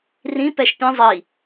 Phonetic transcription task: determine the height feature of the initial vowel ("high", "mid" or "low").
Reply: high